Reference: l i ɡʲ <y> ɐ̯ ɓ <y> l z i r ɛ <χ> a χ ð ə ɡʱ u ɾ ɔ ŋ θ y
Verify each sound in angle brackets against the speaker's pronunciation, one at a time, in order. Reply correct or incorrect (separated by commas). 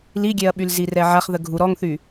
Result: incorrect, correct, incorrect